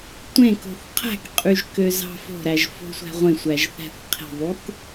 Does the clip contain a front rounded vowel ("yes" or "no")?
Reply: yes